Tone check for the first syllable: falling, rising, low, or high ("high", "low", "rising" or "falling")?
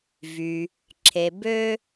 low